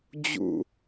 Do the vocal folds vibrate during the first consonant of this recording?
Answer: yes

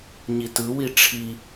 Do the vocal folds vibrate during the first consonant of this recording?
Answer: yes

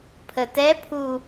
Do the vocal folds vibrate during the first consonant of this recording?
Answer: no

